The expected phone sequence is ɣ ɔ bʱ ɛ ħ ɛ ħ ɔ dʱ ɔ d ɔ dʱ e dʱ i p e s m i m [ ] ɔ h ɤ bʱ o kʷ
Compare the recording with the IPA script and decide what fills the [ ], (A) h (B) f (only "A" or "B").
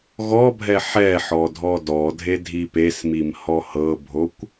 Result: A